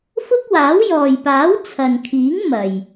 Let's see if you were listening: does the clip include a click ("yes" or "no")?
no